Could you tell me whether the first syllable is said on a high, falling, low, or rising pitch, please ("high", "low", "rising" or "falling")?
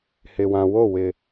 low